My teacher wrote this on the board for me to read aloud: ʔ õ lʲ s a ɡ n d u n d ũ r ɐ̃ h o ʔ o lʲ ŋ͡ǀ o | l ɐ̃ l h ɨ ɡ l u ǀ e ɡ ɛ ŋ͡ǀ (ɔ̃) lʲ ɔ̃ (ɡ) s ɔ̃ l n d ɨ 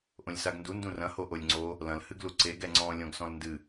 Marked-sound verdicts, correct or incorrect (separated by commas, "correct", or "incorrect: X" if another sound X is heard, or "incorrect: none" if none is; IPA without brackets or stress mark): correct, correct